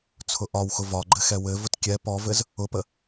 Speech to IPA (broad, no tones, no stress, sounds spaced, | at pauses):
t͡sʰ ʊ ʔ ɒ w x ʊ v ɒ ɡ͡ǃ ɘ x ɛ w ɘ v ʊ t kʲ ɛ p ɔ v ɘ z | ʊ p ə